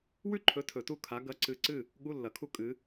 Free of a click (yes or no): no